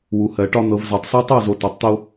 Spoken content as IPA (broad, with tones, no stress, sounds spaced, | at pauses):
w u˨ h ɜ˨ ʈ ɒ˦ n̪ ɤ˨ v z ɒ˨ tˤ s ɒ˦ tˤ ə˦˨ w z o˨ t ɔ˨ tˤ t̪ o˦